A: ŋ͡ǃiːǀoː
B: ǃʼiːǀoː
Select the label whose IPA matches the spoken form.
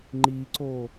A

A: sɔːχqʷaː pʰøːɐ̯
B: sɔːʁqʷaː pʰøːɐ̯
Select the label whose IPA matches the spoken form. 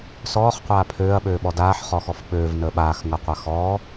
A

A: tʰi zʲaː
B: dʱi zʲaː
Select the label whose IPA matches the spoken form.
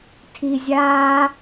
A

